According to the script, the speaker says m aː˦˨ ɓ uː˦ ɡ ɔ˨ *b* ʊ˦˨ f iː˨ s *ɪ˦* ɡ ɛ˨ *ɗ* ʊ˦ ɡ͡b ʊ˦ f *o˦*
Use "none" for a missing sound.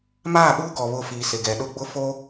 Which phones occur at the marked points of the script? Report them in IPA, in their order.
β, ɪ˨, ɗ, o˦

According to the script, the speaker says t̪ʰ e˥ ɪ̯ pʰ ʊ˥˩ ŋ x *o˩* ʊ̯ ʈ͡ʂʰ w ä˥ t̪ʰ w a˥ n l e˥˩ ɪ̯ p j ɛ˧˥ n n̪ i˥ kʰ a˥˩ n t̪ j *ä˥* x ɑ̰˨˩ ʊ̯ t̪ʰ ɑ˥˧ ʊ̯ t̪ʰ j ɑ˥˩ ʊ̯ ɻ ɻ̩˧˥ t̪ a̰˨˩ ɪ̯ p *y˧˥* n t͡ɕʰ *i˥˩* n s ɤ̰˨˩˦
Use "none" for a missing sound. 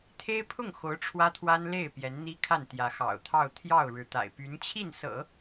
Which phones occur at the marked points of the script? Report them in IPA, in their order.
o˧˥, ä˧˥, y˧˥, i˥˩

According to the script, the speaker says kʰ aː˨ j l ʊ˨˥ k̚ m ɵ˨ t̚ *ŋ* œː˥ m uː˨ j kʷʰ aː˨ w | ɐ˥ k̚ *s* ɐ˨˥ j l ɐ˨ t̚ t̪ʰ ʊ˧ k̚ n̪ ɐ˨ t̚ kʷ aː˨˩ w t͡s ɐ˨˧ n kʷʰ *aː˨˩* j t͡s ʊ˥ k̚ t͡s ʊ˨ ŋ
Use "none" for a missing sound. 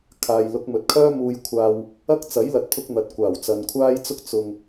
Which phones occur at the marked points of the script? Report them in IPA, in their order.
kʰ, t͡s, aː˥

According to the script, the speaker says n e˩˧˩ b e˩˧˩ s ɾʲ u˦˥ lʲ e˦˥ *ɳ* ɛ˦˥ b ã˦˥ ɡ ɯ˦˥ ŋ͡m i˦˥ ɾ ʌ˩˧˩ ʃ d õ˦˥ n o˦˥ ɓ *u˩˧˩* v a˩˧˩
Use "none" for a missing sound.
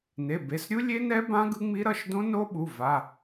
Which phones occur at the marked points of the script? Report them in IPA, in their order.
n, u˩˧˩

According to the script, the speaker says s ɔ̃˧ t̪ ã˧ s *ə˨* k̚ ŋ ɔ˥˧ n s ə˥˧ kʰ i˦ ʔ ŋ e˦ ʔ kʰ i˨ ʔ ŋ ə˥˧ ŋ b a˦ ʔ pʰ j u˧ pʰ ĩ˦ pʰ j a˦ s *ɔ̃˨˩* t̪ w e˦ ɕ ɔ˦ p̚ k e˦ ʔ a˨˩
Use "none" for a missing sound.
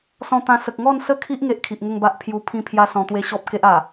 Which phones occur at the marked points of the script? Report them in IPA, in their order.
ə˨, ɔ̃˧

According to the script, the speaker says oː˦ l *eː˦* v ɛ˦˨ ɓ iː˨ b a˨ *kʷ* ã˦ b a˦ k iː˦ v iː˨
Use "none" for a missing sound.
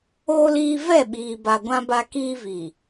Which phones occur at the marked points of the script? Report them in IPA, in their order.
iː˦, ɡʷ

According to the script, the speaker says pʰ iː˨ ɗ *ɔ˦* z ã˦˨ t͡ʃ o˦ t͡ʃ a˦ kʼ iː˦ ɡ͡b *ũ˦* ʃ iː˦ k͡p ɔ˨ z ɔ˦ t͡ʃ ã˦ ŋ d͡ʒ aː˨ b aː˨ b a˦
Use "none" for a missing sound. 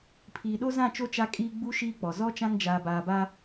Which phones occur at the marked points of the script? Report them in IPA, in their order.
o˦, u˦

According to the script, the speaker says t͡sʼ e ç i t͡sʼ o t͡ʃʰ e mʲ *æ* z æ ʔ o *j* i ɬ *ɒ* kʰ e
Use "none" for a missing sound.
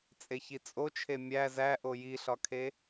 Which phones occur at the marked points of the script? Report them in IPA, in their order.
æ, j, ɒ

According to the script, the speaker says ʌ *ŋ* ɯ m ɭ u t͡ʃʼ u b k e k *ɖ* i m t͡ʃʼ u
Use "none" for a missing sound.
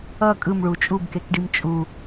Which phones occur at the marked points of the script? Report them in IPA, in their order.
kʼ, ɖ

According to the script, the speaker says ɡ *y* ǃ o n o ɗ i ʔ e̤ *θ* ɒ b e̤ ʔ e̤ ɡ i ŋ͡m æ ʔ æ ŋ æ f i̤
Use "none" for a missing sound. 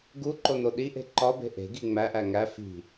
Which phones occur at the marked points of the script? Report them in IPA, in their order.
u, ǃ

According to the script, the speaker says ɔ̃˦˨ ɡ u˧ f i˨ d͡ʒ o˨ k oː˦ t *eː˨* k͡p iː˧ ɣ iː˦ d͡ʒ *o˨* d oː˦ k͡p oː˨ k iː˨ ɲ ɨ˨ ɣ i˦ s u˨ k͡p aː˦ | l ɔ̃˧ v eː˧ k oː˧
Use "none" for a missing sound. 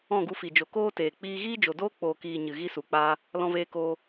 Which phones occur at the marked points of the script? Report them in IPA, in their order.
eː˨, o˨

